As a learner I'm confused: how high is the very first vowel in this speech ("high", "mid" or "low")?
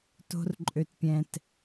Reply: mid